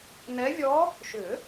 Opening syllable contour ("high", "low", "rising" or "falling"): rising